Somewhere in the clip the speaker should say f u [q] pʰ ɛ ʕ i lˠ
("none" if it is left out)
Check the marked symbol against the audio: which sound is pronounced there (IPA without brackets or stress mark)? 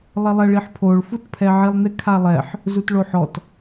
t